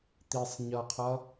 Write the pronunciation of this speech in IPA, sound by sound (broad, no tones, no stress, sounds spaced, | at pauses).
t̪ i sˤ ɲ ʌ qʰ ʌ